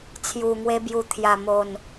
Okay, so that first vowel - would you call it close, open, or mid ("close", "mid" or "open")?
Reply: close